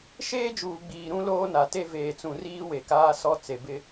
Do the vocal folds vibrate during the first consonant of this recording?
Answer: no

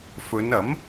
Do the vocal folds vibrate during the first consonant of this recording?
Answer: no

